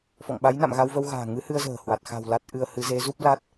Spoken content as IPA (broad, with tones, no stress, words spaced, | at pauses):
fɔ̰˧˨ŋɓa˨˦jna̰˧˨m ɣa˧wvə˧wɣa̤ː˨˩ ŋɨ˨˦hɨ˧ə̯zə̤ː˨˩hwa˨˩t̚ xa̤˨˩w la˦˥t̚ʔɨ˧ə̯ hɨ˨˦ze˨˦zu˦˥p̚la˦˥t̚